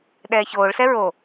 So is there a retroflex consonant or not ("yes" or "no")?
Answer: yes